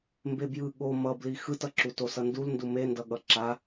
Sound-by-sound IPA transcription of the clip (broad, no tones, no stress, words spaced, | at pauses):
mbebjɯ ɠo mʌbli xɯtʌǁu tosʌndulndu mendʌɠʌ ǁa